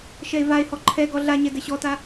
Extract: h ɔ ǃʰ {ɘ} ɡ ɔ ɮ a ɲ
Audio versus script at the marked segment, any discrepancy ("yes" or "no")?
yes